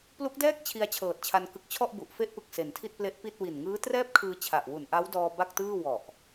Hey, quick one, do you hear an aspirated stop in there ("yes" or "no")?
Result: yes